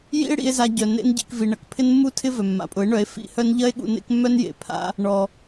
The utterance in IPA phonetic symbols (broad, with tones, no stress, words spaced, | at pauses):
jḭ˦e̯ɽḭ˧e̯za˧ɟœ˨ nḛ˦nɟḭ˧k vi˨ɳɐ˨k pʰɪ˦nmːu˦tʰɪ˦ vœ˨mːa̰˨pʼʊ˨˦e̯ɳœ˨˦e̯ fḭ˧hœ˦n ʎɐ˦e̯ɠṵ˧ nḛ˦kmːœ˦njḛ˨pʰa̰˦ | ɳɔ˨